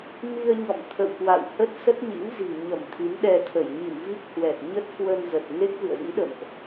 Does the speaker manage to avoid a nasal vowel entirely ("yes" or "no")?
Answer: yes